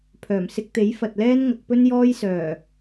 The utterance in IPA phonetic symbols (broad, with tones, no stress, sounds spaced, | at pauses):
pʰ œː˨˩ m s ɪ˧ k̚ t̪ e˨˥ j f ɐ˨ t̚ l ɛː˥ n ŋ ɐ˨˥ k̚ p ɵ˥ n j ɔː˥ j s œː˨˩